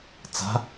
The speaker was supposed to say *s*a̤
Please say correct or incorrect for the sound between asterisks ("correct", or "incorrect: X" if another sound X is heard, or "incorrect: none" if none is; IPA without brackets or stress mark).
incorrect: t͡s